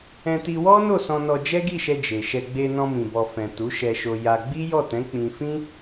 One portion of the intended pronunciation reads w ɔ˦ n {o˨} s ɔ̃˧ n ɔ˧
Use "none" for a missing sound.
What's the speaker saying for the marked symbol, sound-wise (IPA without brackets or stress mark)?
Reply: o˦˨